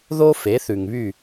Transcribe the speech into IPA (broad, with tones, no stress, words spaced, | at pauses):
ðo˥fe˩˥θʉ˩ŋβy˥˩